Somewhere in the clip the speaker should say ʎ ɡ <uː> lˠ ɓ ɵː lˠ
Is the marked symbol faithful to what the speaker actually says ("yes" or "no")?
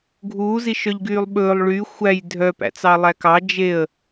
no